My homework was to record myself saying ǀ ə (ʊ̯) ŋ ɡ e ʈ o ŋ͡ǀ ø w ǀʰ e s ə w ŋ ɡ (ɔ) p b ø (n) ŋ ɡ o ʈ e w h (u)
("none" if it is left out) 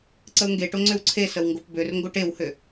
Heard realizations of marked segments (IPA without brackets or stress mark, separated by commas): ʊ̯, o, r, ø